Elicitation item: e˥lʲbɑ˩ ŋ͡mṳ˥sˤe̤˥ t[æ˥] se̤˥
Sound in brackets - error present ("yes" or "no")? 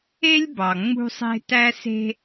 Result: no